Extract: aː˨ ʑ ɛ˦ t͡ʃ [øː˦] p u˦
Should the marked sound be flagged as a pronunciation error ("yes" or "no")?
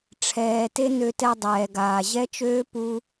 no